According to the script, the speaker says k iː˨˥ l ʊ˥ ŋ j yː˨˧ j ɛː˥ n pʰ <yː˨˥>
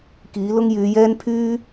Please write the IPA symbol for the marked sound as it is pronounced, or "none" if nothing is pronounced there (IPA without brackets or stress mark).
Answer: yː˥